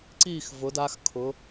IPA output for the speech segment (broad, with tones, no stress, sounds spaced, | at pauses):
ǀ iː˥˧ x v ʊ˨˦ d a˨˦ x kʰ ʊ˨˦